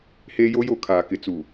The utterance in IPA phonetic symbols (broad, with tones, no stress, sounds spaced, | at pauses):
h eː˦ j o˦ j o˦˨ kʰ aː˨ k ɪ˨ t͡s u˨